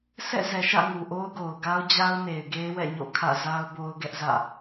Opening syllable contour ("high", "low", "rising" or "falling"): falling